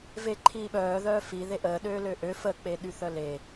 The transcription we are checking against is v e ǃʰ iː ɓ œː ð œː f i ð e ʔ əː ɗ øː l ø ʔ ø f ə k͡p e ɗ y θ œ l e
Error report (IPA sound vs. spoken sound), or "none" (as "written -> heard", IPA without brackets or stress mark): none